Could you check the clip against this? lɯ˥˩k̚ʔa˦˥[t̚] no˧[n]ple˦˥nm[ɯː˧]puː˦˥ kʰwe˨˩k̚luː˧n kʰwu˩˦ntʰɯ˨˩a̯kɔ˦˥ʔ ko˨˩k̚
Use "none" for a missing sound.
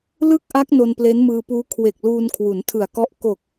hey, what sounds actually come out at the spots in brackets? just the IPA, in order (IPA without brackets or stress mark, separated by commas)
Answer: k̚, n, ɯː˧